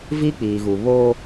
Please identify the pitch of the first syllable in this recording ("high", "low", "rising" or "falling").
high